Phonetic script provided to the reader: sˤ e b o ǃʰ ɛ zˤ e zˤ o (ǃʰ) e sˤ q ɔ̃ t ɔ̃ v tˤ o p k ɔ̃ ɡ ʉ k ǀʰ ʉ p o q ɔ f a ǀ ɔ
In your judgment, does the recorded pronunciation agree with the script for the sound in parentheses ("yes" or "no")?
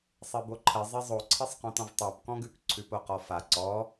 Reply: no